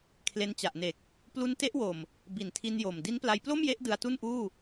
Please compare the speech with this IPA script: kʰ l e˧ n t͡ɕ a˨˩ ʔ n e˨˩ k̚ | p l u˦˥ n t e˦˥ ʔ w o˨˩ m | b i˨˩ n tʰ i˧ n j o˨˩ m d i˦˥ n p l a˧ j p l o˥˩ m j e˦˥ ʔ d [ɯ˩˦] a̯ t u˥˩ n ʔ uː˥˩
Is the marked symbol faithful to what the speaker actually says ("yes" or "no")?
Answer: no